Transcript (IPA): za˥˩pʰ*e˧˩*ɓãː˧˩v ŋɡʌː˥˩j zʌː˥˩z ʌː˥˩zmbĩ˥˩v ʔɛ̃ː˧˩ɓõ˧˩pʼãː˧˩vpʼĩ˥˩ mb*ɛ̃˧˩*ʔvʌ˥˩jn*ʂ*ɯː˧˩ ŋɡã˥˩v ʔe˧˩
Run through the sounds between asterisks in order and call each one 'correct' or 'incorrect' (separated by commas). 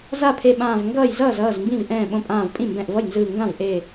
correct, correct, incorrect